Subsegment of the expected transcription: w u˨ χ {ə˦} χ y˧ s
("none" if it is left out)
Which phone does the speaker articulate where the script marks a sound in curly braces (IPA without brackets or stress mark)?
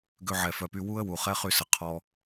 ɛ˦